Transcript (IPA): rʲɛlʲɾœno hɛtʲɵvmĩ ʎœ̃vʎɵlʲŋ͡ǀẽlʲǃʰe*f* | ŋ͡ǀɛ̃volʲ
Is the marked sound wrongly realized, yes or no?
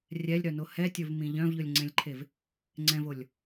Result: yes